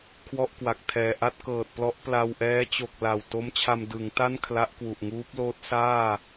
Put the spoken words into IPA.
kʰwɔ˥˩ʔkwa˨˩k̚tʰɛː˨˩ ʔa˥˩t̚kɤː˨˩t̚plɔ˦˥ʔ pla˧w ʔɛː˦˥t͡ɕo˨˩k̚ la˨˩w to˦˥mt͡ɕʰa˧m dɯ˩˦ŋta˥˩n kʰla˦˥ʔkwu˨˩ʔŋuː˦˥p̚loː˦˥t̚ saː˥˩

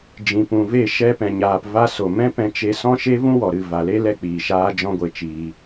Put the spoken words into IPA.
d͡ʒĩ˨pũ˨ve˦˨ ʃɛ˧pɛ̃˨ɲaː˨p va˧so˨ mɛ̃˦pɛ̃˧ t͡ʃe˧sɔ̃˦ʃe˦ vũ˦wɔ˨ɾɨ˦˨ va˨le˦lɛ˧ k͡piː˨ʃaː˧ d͡ʒɔ̃˦ɡʷe˧t͡ʃiː˧

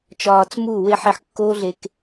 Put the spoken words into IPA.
t͡ʃɒː˧t͡smu˦˨we˦ ħi˧ħkːoː˦ɮe˧k

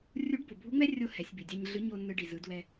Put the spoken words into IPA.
rʲu˧˥ɖbo˩bʱu˧˥ŋ͡mɛ˥ rʲo˥hɛ˩˧sʲbi˩ dʲa˧ɲɮɯ˧˥ ɲo˧ nːɯ˧ɖi˩zɯ˩˧ dwɛ˧

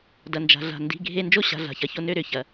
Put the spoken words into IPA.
dɐ˩nd͡ʒa̤˩ɮa̤˩ ndi̤˩˧˩ɡʱe˧ nd͡ʒo˥˨ɕa̤˩˧˩ ɮa̤˩çɐ˩˧˩ço˧ nø˧ɾʏ˩˧˩ çɐ˩

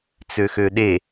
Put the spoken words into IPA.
t͡søxøɗe

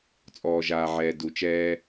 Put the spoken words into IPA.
t͡sʼɔː˨ʒaː˨ʕɛː˨ du˨t͡ʃɛː˦

